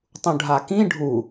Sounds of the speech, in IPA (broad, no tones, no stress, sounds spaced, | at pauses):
tˤ ũ ɖʱ a k ĩ ɖʱ u